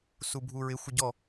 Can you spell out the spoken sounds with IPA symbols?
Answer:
subʱuɹɪ xʷɪɟɔ

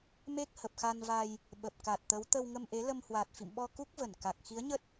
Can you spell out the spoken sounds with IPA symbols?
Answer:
me˦˥k̚ hə˨˩p̚xa˧nva˧j | ɓə˨˩p̚ka˨˩t̚t̪ə˨˦w t̪ə˧wŋə˧mʔe˨˦ lə˧mhwa˨˩t̚fḭ˧˨mɓɔ˧ ku˦˥k̚və˧˩n ka˨˩k̚ xi˨˦ə̯ɲə˦˥t̚

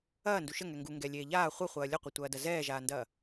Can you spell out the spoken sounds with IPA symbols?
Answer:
ɐː nduʃə ŋɛŋɡu ŋɡɛlʲeːʎaː χʷɐχʷɐː lʲəqʷɐtʷɐːdɐ zɛːʒaːndɐː

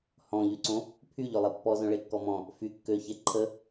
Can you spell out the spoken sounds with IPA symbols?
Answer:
hɔ̃ʎyǀõ | pʰyʎølˠi pːɔzœ̃ɭekːɔ mɔ̃ | fy kːøçe ǃʰə

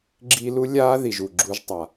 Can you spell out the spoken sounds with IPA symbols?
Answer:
ɡ͡ǁi˧ lu˦lʲaː˦ ði˨ʒu˨ ɡ͡ǁu˦ʒtˤa˧

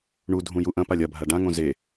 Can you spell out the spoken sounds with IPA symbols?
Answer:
ɳudʱũju ʔɐ̃palʲ ɐbʱa ɖãŋõ ze

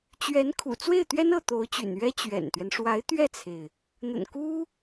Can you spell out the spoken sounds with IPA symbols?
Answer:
t͡ɕɥɛ˧˥nkʰṵ˨˩ t͡swe˥˩ɪ̯t̪ɥɛ˥nɤ˥˩ t̪o˧˥ʊ̯t͡ɕy̰˨˩n ɥɛ˥ t͡ɕɥɛ̰˨˩nt̪ɥɛ˦n ʂwa˧˥ɪ̯ t̪ɥɛ˥˩t͡sʰe˩ɪ̯ | n̪ə̰˨˩nku˥

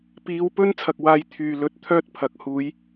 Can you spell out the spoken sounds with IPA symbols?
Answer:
piː˨˧wpɵ˥n t͡sʰɐ˨k̚waː˨˧j t̪ʰyː˨˩lɵ˨˥t̚ t̪ʰœː˥t̚pʰɐ˨k̚huː˨˥j

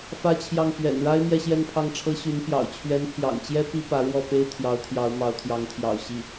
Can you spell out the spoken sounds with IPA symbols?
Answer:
fä˥t͡ɕʰjɑ˥˩ŋ pɥɛ̰˨˩nɻa˥ɪ̯ mjɛ˥˧ɕjɛ˥˧npʰɑ˥˩ŋʈ͡ʂʰɤ˥ ɕy˧˥npjɑ̰˨˩ʊ̯ t͡ɕʰɥɛ˧˥npʰjɑ̰˨˩ŋt͡ɕjɛ˥ pi˥pä˧˥ɻwɔ˥˩pe˥ɪ̯ t̪ʰjɑ˧˥ʊ̯t̪ʰjɑ˧˥ʊ̯ mɑ˧˥ʊ̯t̪ʰjɑ˧˥ŋt̪ʰjɑ̰˨˩ʊ̯ ɕi˥˩

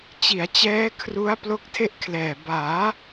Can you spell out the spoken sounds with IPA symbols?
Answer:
t͡ɕi˩˦a̯t͡ɕɛː˦˥ kʰru˦˥a̯ plo˦˥k̚tʰe˥˩ʔkʰlɛː˨˩ baː˩˦

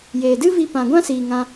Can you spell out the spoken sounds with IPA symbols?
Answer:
jeː˨dɨ˦vi˧ pã˨ɡʷã˦siː˨ ŋã˧

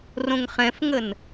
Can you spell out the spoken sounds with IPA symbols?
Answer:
rõŋχɛ̃fŋən

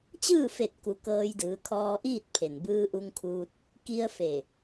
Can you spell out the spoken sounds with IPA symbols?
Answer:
t͡ɕɯː˥˨fe˧˩t̚ku˩˧ kɤː˧jdɯː˩˧kʰɔː˧ʔiː˥˨t̚ pʰe˩n bɯː˧ʔu˧ŋkʰuː˧t̚ | ki˧ə̯fe˧˩

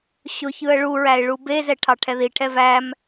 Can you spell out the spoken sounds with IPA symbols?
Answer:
ɕʊçɯə̯ ɭuɹæɪ̯ ɭubezɛ ʈʰɑʈʰɛðiʈʰɛ væm

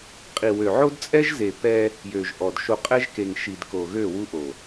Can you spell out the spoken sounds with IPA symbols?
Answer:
qʼi˨wø˨ ʕo˦dt͡sʼɛ˦ʒze˨ pɛ˦ | jø˨ʒʔɔ˨dʃo˦ qʼɛ˦ʒke˨ŋ ʃi˨d ko˨ɣø˦˨wu˦ʔo˨

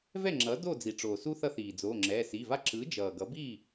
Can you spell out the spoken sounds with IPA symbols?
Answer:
vɛ˥˩ŋ͡ǁʌː˩˥ do˥˩d͡zi˩ʈ͡ʂoː˩su˦ θʌ˦θiː˩d͡zoː˩˧˩ŋ͡ǁɛː˩˧˩ si˩˧˩va˦ ǁɯ˩˥d͡ʒʌː˩ ɡʌ˩˥bi˥˩

